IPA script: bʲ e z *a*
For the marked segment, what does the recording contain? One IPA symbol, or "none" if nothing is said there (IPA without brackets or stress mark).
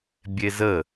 ə